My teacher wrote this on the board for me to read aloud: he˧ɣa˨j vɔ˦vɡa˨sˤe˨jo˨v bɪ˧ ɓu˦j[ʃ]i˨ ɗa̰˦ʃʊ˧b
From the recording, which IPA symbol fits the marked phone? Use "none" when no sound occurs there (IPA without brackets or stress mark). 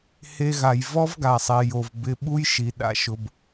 ʃ